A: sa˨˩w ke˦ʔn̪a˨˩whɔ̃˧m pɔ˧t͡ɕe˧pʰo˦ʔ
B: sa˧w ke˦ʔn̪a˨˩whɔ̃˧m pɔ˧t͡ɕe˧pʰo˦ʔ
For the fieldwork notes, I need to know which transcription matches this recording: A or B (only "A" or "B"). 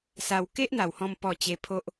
B